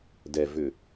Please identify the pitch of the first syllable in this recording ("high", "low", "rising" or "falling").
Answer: low